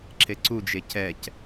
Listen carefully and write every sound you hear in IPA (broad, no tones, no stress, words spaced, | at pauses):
ǁeǀud͡ʒe cɛc